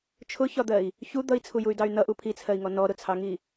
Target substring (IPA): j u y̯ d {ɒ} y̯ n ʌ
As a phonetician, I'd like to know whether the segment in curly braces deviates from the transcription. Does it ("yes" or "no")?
yes